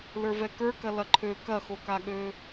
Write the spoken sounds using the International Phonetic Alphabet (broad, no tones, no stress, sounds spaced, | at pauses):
l ə˞ v ɛ k ə˞ k ɐ l ɐ ǃʰ ø k ɐ x o k a ɠ ø